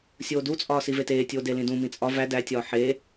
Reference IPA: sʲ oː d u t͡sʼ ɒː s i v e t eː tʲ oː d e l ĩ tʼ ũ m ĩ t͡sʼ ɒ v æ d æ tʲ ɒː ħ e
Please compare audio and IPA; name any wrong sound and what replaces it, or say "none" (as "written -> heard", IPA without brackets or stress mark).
tʼ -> d